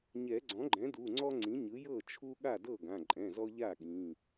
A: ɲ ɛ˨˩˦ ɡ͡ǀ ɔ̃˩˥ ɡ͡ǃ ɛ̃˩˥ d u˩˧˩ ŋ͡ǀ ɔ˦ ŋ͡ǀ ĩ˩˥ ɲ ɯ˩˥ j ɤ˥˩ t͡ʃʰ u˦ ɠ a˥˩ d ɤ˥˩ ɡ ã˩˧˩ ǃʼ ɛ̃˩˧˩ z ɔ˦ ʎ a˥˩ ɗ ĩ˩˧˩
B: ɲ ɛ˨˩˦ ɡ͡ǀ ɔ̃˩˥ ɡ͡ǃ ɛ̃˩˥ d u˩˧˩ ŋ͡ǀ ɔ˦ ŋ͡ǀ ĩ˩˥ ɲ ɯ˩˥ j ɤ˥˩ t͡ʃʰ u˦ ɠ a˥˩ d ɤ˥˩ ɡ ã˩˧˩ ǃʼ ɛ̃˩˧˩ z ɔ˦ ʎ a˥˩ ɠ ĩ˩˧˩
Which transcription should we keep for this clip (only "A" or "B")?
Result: B